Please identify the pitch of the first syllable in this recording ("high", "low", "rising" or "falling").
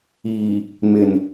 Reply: low